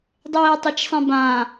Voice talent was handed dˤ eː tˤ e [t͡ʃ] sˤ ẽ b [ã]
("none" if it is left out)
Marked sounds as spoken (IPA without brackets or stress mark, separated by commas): t͡ʃ, ã